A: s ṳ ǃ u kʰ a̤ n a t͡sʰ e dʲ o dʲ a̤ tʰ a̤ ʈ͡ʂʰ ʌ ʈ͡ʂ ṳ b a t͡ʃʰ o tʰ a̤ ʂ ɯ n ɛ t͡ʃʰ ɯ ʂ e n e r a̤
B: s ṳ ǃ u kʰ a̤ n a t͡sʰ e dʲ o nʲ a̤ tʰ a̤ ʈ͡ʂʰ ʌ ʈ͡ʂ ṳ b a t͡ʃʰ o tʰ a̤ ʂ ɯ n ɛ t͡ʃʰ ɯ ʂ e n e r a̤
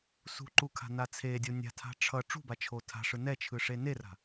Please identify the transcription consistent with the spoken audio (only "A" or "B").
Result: B